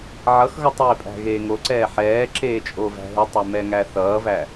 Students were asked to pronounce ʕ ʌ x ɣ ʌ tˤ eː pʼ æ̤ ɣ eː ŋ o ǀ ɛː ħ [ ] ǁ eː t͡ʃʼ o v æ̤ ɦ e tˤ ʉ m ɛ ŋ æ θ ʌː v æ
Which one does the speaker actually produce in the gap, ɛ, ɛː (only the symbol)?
ɛː